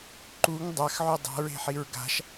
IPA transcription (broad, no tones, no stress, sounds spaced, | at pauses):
ǃ u ŋ dˤ a x ʕ ʉ dˤ a̤ ɹ e̤ ħ i ɹ ɡ a̤ ʃ